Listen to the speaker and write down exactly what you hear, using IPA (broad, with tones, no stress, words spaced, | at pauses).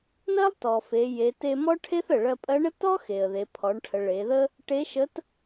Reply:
nɜ˥lˠtɔ˩fe˩˧ je˩˧te˧mɔ˥ʈʰe˥θ ə˩ɭɜ˧pʼɜ˧˥ɳə˥ tɔ˥ xe˩ə̯ðe˩˧pʰɔ˩˧ɳʈʰə˩˧ ɭe˩˧ðə˥ | ʈe˧˥ʃə˧˥t